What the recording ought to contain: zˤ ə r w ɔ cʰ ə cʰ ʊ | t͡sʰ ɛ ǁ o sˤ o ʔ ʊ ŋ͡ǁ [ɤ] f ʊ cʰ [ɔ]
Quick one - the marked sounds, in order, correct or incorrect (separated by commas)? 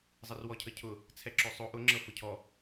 correct, correct